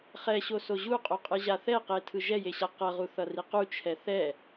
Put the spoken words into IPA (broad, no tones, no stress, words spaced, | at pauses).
χɛɕoso ʑuqʼoqʼɯ ʑaθɛqe tʰɯʒɛjeɕa qʌʁu θʌriqu t͡ʃʰɛθɛ